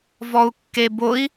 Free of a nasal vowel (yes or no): yes